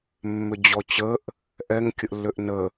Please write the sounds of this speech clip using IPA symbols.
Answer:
mːʏd͡ʑɔt͡ɕəʔ | ʔɛŋ kʲəʔlːʏʔnə

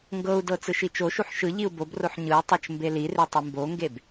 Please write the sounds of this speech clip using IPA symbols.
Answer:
ŋɡɤu̯dɤ t͡sɯʃit͡ʃoʃuħ ʃɯ ʎiu̯bobroħ ɲɯu̯tˤɤt͡ʃ mbelire tˤɯmboŋɡeb

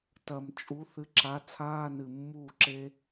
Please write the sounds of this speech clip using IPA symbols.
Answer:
tɐ˨˩m t͡ʃʼu˨˥ θɨ˨˥ǁa˨˥ t͡sʰaː˧˥˧nɨ˨˩mːuː˥˩ ǁe˥

